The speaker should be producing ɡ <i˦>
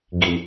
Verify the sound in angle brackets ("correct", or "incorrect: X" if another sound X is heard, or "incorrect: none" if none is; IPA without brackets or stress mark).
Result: incorrect: i˨